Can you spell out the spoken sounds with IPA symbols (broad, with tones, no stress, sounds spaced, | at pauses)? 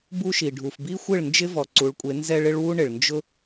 b u˦ ʃ i˨ ɖʱ u˨ f b i˦ xʷ ɪ˦˨ ɭ n d͡ʒ ɪ˦ v ɔ˨ ǀ u˨˦ ɭ kʷʼ e˨˦ n z ɛ˧ ɭ ɪ˦ ɭ w u˦ ɳ ɪ˨ ɭ n d͡ʒ ʊ˦